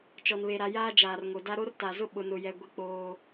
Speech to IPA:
t͡ʃɔ˨nβe˨ɾa˨ jaː˦ d͡ʒaː˨rŋo˨da˦ ɾo˦rta˨zʊ˦ ɓʊ˨nʊ˨jɛ˨ ɡʷi˦k͡poː˦

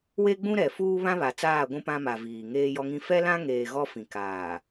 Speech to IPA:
we˦ɡ͡bũ˦ɾɛ˨ fuː˦βã˦βa˨ t͡saː˦˨ ɡʷũ˦pã˦ma˨ viː˨ ŋeː˦jɔ˦ŋĩ˦ fɛ˦lã˦ŋeː˨ ɣɔ˦fĩ˨kaː˨

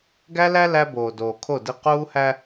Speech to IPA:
ɡæ˦læ˦ læ˦ boː˨doː˨kʰo˦˨di˦ quː˦hæ˦

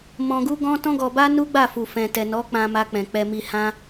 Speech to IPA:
mɔ̃˧ɡu˦ɡɔ̃˦ tɔ̃˦ɡɔ˧ba˦ nu˦ɡ͡ba˦˨fu˨ fɛ̃˨tɛ˨ nɔ˨˦k͡pã˧ ma˧k͡pɛ̃˨ k͡pɛ˧mi˧hã˦

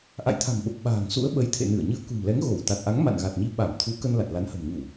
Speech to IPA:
ʔa̰˧˨jt̪ʰa̤˨˩mɓə˨˩p̚ ɓa̤ː˨˩ŋsṵ˧˥ə̯ɓə˨˦j t̪ʰḛ˧˨nɨ˧˩ə̯ɲɨ˧ə̯ kṳ˨˩mlɛ˨˦ŋɣo˧˩w t̪a˨˩t̚ʔa˨˦ŋ ma̰˧˨nɣa˨˩t̚ɲi˨˦ ɓa˧˩mt̪ʰu˨˦kə˧n la˨˩t̚la˨˦nhə̤˨˩m ɲu˧˩˨

